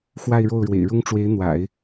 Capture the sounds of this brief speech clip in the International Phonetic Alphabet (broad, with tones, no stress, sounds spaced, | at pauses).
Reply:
x w a˥˧ ɪ̯ ɻ o˥˩ ʊ̯ ɻ w ḛ˨˩ ɪ̯ ɻ ʊ˥ ŋ ʈ͡ʂ w e˧˥ ɪ̯ n̪ w a̰˨˩˦ ɪ̯